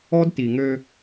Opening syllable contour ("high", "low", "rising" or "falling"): high